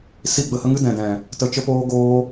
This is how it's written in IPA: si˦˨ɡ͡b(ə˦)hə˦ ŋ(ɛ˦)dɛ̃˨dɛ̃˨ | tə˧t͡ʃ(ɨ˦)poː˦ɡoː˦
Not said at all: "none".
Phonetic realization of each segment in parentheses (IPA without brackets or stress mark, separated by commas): ə˦, ɨ˦, ə˦